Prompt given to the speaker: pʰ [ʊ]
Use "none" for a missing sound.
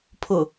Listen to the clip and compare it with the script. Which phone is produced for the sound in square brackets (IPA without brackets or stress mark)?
ʊ